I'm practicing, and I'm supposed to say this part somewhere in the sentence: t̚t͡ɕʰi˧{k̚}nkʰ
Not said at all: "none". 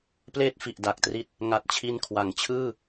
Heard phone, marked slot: none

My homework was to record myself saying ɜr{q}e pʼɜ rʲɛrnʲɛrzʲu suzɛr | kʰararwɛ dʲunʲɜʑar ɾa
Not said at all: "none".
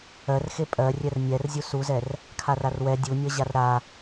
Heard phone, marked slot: x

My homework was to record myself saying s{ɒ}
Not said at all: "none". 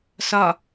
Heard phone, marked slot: ɒ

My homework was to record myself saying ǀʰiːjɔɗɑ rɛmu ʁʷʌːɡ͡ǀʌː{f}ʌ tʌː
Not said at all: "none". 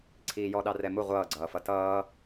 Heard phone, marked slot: f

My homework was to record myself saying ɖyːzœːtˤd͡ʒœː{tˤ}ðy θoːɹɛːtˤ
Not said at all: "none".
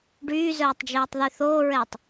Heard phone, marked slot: tˤ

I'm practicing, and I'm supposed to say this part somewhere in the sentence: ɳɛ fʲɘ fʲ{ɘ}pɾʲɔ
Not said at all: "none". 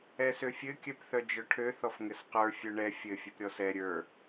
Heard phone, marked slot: ɘ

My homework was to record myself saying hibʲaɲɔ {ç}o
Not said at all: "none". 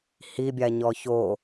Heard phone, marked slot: ç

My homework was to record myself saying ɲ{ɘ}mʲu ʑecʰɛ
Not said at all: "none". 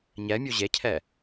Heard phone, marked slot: ɛ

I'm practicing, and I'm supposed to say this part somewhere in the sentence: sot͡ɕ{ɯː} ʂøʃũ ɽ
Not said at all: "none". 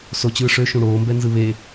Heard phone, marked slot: ɯː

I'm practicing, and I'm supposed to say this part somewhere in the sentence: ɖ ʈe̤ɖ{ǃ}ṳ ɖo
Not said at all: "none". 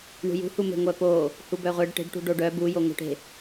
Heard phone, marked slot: ʈ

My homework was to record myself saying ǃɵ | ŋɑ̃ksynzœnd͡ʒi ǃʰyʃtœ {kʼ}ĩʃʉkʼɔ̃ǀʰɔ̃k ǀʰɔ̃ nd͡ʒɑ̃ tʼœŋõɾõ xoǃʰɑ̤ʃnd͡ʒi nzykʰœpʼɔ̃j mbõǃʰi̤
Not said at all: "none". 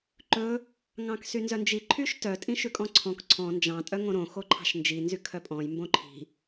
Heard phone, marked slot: tʼ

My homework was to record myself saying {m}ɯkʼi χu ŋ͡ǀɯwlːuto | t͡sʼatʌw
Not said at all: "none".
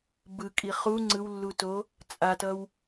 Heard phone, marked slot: b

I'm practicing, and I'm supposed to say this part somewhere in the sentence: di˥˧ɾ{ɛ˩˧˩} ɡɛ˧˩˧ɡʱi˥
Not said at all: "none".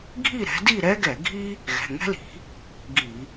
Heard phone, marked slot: ɛ˥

